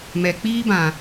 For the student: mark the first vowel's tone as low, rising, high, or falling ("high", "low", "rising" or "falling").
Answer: low